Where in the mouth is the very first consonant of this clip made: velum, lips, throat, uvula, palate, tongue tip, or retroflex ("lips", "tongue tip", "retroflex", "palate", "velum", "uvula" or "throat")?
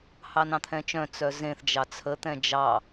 throat